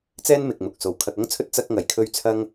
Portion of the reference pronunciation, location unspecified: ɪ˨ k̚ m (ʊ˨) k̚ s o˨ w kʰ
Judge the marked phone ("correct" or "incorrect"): correct